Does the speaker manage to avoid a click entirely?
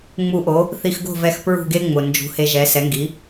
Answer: yes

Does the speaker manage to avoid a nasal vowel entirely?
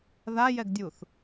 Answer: yes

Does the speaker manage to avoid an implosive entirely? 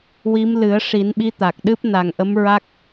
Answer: no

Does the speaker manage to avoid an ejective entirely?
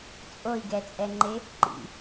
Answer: no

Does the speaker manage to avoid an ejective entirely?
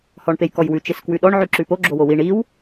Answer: yes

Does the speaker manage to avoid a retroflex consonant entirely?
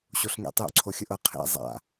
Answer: yes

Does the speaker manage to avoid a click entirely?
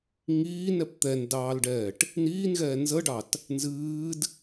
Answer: yes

